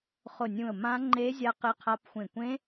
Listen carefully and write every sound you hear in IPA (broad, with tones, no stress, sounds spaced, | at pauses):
χ ʊ˧˩ nʲ ũ˧˩ ə̯ m ã˦˥ ŋ͡ǃ e˦˥ zʲ a˦˥ q ɪ˦˥ qʰ a˦˥ p xʷ ẽ˧˩ kʷ ẽ˦˥